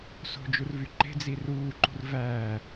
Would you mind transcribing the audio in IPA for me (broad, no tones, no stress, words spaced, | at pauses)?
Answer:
so̤d͡ʒurvy ǃe̤d͡zi ruːǃṳr væ